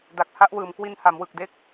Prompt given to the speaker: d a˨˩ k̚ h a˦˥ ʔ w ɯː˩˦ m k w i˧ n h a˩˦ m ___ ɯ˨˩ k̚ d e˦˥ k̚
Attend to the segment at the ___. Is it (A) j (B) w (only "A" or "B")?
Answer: B